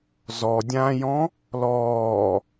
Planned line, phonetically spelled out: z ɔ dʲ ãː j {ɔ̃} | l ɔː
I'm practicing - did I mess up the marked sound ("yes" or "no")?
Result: no